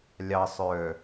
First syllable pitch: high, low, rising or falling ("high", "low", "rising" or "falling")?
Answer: low